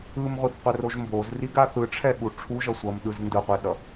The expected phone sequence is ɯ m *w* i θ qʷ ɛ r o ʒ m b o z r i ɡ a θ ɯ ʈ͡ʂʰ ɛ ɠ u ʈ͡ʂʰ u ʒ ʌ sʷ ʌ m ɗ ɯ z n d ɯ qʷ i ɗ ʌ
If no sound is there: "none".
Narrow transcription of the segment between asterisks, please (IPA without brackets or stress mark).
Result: ʁʷ